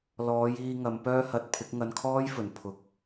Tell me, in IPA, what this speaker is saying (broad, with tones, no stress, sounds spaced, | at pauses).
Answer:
l ɔː˨˧ j iː˧ ŋ ɐ˨˧ m p œː˥ h ɐ˧ t̚ pʰ ɪ˨˥ k̚ ŋ ɐ˧ n kʰ ɔː˥ j f ɵ˨˩ n pʰ ʊ˨ k̚